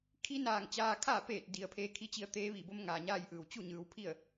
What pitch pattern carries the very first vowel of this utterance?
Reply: rising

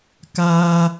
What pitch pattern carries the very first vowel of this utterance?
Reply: high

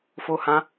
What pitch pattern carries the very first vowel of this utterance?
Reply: high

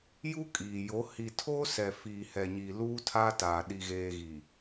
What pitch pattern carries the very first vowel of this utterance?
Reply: high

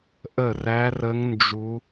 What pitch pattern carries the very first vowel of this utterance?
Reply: falling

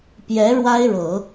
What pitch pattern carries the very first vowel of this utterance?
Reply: rising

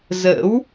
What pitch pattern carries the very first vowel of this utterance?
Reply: rising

